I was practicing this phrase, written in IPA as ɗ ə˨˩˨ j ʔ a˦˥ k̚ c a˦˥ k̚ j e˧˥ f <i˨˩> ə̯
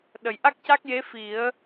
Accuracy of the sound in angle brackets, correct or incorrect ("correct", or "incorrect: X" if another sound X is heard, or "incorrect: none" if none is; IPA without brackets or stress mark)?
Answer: incorrect: i˨˩˦